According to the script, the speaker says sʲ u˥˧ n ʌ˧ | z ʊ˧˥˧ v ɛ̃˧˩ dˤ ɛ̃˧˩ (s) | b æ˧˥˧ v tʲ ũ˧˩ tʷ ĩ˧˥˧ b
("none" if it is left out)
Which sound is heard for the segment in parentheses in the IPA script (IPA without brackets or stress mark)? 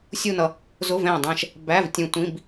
ʃ